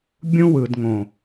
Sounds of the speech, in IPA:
bʲ ũ˦ w ɯ˨ d ŋ õ˨

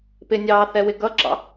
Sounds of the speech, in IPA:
p ɪ nʲ ɑː θ ɛ w ɪ ɡ ʌ ǁ ɑ̰

